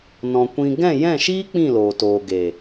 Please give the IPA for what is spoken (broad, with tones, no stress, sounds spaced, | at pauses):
n ɔ̃˨ kʷ ĩ˧ ɡ ɛ̃˦˨ j ɛ̃˦˨ ʃ iː˦ k͡p ĩ˦˨ l oː˨ t oː˨ ɡ e˨